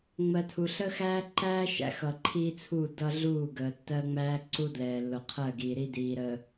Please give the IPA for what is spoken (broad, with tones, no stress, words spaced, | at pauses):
ŋ͡mɜ˨tʰu˨ɬə˦xæː˦ ǃæː˦ ʃæ̰˨xʌ˨ǃʰiː˦t͡sʰuː˦˨ dʌ˦ɮuː˦˨ɡəː˨tːɜ˦ ŋ͡mæː˦ ǀu˦dlɛː˨ lːʊ˨qʰɜ˦˨ɡiː˨ɾi˦ diː˨ɾə˨